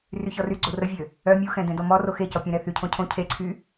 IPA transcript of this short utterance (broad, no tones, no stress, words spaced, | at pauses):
ryçɔryɡ͡ǀo rəvʲø | œ mʲuxɛ̃ dɛ̃dɔmɔro xecɔ pʲɛ̃ɾɛθycʰõ cʰõcʰeǀʰy